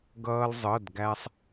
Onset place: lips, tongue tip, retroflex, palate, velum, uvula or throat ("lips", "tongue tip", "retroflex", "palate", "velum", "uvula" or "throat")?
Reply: velum